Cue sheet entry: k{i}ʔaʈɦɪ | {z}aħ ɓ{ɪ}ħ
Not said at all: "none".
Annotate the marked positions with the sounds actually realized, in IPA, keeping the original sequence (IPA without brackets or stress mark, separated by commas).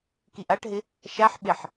i, ʃ, ɪ